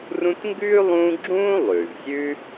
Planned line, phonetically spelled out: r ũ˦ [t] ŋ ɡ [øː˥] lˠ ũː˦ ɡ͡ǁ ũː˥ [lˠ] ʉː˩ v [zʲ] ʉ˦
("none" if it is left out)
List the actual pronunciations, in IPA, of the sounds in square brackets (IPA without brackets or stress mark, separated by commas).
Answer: t, ʉː˥, lˠ, zʲ